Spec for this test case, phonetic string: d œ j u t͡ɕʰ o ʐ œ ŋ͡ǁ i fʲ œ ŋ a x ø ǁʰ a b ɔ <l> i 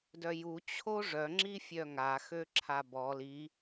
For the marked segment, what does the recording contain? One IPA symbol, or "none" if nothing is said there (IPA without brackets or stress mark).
l